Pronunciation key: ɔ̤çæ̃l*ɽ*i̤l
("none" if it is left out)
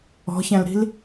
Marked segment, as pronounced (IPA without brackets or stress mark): ɾ